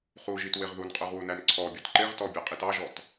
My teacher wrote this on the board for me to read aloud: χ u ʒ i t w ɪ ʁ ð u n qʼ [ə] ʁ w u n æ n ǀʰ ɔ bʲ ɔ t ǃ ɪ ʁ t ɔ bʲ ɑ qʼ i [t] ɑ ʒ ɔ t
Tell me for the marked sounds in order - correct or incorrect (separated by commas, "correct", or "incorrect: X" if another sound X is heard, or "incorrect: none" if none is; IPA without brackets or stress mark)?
incorrect: ə˞, correct